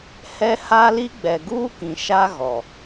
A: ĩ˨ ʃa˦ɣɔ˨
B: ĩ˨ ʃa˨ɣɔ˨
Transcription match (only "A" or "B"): A